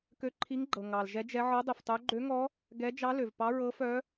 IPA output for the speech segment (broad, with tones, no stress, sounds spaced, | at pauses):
k ø˧˥ ǃʰ i˧˥ ŋ ɡ͡ǃ ɤ˩ ŋ ɑ˩ l ʒ ɛ˧˥ d͡ʒ ɛ˧˥ ʕ ɤ˧˥ dˤ i˩ f tˤ œ˧˥ ɡ͡ǃ ø˧˥ ŋ ɔ˧˥ | ɡ ɛ˧˥ d͡ʒ ɑ˧˥ l ø˩ v p ɑ˧˥ ɹ ɤ˧˥ f œ˧˥